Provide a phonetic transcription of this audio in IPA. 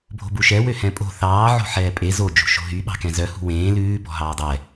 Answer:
bʱ o̤ b u ʃ ɛ w ø h ɛ̃ pʼ o̤ θ ɑː ʕ o̤ ħ ɛː pʼ e z o d͡ʒ ṳ ʃ o̤ ɦ y ɓ ɑ̤ k ɛ̃ z œ h ṳ w ẽː l ʉː b ɔ̤ ɦ ɑː dˤ ɛ

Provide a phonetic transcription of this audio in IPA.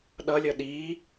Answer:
ɗ ʌ lʲ ʌ ɗ i

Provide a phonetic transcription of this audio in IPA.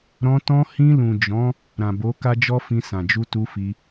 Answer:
ɾ ɔ̃˧ t ɔ̃˧ h ĩ˧ l ũ˨ d͡ʒ ɔ̃˨˦ | ɾ ã˨ b o˨˦ k a˦ d͡ʒ ɔ˦ f ĩ˧ s ã˨ d͡ʒ u˧ t u˧ f i˧

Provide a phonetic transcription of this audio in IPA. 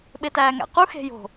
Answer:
ɓ e t æː ŋ æ̰ q u x e̤ j o̤

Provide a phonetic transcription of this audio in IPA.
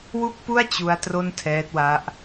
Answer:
w u˥˩ k̚ p u˥˩ a̯ t͡ɕ u˦˥ a̯ t r o˥˩ n tʰ ɛː˦˥ t̚ w a˦˥ ʔ

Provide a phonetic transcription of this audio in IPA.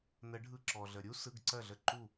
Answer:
n ə˨˩˦ ɖʱ ɯ˧˩ ǁ ɔ˩ ɮ ə˩ ɾʲ u˥ s ɯ˩˧˩ ɡ ǀ ɜ˧˩ ɮ ə˧˩ ǃ u˧˩

